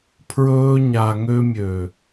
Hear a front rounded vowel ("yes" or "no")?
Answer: yes